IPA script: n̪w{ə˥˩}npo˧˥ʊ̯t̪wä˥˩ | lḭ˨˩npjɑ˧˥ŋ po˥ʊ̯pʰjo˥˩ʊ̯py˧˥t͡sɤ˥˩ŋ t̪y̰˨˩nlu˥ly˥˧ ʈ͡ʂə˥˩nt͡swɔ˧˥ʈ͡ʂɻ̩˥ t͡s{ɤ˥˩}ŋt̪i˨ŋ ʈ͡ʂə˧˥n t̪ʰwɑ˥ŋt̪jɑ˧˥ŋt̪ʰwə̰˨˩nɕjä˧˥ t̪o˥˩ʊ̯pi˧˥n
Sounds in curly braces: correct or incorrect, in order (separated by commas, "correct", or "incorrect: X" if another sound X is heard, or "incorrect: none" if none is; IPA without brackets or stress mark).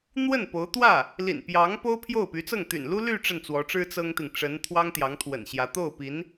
correct, incorrect: ɤ˥